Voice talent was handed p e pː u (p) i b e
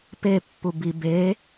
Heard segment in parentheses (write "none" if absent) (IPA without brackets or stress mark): b